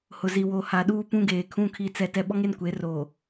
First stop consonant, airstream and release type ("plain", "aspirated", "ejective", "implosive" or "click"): implosive